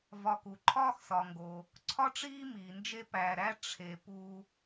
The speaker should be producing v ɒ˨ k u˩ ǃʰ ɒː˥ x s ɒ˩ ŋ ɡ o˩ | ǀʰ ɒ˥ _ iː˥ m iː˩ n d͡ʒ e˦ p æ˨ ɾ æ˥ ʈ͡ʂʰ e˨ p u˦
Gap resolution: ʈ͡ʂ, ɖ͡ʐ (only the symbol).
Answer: ʈ͡ʂ